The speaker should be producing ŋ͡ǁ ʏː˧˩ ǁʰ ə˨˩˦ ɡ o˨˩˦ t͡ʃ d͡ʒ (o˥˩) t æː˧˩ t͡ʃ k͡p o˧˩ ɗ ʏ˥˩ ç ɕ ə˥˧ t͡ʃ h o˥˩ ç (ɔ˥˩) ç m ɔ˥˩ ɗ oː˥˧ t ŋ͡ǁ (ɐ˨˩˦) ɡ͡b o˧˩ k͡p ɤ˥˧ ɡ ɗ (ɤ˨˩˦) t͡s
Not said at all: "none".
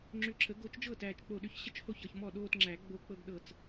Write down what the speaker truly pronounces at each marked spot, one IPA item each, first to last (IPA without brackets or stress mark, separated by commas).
ɤ˥˩, ɤ˥˩, æ˨˩˦, ɤ˧˩